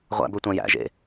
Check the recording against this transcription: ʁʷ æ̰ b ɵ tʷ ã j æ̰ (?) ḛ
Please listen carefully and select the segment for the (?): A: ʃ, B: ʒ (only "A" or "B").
B